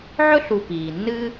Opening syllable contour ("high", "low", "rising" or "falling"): high